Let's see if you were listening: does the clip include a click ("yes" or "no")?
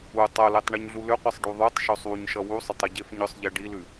no